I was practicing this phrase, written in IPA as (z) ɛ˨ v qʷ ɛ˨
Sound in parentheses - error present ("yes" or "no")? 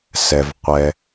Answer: yes